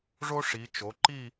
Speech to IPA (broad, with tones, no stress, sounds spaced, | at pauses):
ʐ o˥ ʂ i˩˧ t͡ʃ o˩˧ ǃ i˥˧